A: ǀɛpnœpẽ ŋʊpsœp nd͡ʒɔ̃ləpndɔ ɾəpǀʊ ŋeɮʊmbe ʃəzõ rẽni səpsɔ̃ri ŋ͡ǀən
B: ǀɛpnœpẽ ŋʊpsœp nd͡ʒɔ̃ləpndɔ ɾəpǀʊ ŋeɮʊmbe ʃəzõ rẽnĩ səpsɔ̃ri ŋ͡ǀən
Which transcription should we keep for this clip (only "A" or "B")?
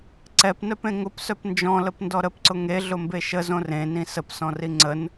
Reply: B